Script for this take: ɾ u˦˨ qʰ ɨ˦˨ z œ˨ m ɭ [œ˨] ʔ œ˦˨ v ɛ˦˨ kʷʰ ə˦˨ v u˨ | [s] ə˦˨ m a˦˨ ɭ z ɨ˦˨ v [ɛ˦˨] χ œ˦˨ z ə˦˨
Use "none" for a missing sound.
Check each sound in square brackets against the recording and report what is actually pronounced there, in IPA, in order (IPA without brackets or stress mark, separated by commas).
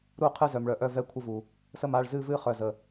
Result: œ˨, s, ɨ˦˨